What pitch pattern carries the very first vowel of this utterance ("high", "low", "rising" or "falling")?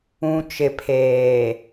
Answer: low